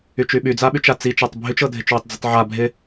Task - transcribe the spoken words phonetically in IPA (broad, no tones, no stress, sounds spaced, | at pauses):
y t͡ʃ y ɓ y d͡z a ɓ y t͡ʃ a t͡s i t͡ʃ a tˤ bʱ y t͡ʃ ɤ dʱ ɪ t͡ʃ w ʊ tˤ d͡z ʊ tˤ ʕ a bʱ ɪ